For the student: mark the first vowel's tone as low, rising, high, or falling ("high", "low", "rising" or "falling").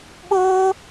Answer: high